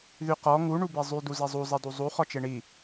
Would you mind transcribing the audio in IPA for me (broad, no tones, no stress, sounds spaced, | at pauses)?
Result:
ð y q ɔ ŋ u ɳ u b e zˤ y d u z e zˤ u zˤ i d u zˤ u χ ɔ t͡ʃ e ɳ i